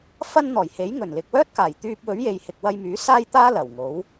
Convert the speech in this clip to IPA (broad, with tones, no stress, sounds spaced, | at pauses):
f ɐ˥ n n̪ ɔː˨˩ j h e˨˥ j ŋ ɵ˨˩ n l ɪ˨ k̚ w œː˥ t̚ k aː˨˩ j t̪ yː˧ p̚ w ɵ˨˥ ɥ j e˨ j h ɪ˨ k̚ w ɐ˧ j m yː˨˥ s aː˥ j t̪ aː˥ l ɐ˨˩ w ŋ o˨˥ w